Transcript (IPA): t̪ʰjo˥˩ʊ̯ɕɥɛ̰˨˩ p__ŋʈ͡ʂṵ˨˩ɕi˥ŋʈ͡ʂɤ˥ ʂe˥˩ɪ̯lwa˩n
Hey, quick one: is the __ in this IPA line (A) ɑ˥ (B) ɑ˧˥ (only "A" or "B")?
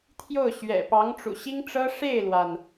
B